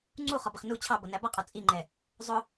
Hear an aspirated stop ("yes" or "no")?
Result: yes